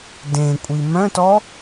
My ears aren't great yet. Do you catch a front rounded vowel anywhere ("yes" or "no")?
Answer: yes